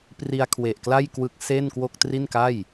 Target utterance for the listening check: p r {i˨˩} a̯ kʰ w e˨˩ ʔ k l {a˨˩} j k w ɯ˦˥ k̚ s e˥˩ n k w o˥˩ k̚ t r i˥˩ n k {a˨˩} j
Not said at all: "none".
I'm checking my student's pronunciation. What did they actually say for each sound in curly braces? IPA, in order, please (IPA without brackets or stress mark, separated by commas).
i˧, a˥˩, a˥˩